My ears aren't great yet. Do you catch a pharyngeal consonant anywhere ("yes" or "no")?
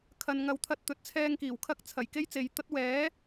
no